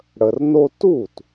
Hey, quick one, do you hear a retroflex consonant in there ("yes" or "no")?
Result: yes